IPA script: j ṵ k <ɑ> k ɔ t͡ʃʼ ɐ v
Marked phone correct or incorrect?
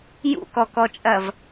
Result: incorrect